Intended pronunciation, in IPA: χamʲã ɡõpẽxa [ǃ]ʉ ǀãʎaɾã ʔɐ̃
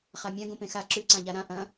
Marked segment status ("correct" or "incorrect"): incorrect